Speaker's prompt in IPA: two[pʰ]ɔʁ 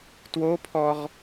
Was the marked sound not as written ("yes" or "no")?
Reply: no